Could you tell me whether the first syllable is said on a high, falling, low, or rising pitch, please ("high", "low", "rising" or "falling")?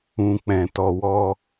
low